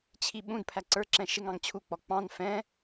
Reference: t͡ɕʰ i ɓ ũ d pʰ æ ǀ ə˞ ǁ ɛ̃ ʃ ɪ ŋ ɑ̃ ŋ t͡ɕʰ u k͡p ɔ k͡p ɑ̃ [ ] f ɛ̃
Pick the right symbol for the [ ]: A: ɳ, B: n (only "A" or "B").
B